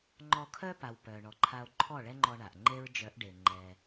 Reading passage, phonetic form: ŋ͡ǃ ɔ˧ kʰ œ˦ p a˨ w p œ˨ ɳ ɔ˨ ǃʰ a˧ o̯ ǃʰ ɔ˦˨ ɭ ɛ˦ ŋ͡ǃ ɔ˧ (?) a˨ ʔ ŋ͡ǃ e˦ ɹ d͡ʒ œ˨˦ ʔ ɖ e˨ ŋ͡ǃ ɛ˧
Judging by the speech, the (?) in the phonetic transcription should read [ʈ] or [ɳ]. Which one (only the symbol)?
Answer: ɳ